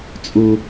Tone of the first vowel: low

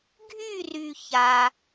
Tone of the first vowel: falling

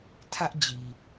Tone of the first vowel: high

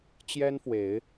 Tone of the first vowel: high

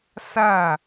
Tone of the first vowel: falling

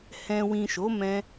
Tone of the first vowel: low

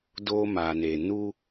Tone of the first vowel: high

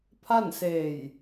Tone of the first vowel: falling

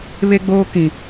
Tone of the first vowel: high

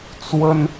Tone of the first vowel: high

